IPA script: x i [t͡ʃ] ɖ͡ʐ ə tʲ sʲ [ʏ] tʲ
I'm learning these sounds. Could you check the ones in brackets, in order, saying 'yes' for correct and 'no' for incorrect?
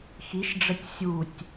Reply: no, no

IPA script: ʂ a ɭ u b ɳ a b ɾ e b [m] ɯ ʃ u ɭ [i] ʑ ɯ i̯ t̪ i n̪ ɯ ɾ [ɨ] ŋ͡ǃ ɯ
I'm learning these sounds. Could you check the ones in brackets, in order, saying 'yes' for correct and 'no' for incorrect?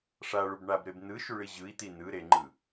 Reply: no, yes, no

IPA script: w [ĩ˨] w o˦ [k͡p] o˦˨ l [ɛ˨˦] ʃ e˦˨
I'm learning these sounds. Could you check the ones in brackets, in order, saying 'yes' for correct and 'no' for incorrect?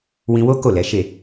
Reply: no, no, yes

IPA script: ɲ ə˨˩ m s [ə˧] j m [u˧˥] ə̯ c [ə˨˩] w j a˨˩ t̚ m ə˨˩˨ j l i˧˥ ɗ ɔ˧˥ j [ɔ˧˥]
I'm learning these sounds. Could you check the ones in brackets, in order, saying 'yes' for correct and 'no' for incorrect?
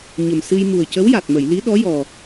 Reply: no, no, no, no

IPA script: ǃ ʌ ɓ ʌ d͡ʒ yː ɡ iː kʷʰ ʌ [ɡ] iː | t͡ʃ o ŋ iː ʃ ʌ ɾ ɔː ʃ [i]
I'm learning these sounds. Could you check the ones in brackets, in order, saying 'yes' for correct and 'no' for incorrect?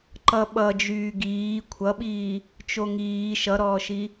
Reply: no, yes

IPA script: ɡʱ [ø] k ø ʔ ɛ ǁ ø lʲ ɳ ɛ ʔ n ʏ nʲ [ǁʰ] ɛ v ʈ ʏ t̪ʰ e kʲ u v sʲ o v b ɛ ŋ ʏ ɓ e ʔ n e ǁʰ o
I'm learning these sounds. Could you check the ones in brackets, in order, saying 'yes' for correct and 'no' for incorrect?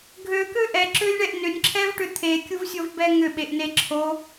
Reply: yes, yes

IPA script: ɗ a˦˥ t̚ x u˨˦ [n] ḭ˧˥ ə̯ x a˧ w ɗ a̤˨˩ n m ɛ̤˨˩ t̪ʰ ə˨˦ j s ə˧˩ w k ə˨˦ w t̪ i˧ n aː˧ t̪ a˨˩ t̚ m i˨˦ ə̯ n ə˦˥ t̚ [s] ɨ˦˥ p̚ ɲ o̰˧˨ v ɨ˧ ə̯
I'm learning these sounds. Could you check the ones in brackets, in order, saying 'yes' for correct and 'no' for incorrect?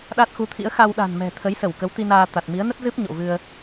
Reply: no, no

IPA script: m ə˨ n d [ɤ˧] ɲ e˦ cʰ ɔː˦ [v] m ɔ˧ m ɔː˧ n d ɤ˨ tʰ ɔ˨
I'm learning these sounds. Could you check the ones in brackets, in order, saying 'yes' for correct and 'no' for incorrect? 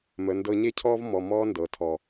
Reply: yes, yes

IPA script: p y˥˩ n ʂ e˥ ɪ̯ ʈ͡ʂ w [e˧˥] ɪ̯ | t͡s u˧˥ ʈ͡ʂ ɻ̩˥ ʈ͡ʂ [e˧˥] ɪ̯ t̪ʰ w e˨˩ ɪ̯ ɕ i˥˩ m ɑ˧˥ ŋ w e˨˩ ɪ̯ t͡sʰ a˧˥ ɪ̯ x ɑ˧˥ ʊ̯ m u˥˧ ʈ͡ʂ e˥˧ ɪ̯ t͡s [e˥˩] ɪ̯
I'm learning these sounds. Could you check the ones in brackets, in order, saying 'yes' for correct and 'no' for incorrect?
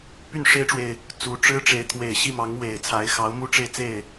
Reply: no, yes, yes

